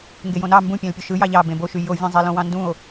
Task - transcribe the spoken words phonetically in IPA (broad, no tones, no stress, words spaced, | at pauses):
ŋɡejõnɑ mbũpʲæ̃lpʲo ʃɯ jɑʎɑ bẽboʃy jovʲẽzˤe lõwɑ̃ndũo̯